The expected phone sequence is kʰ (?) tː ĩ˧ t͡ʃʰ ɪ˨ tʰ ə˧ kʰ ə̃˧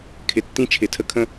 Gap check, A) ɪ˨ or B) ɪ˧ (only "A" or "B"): A